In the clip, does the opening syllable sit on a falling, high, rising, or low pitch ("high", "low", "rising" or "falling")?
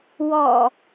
low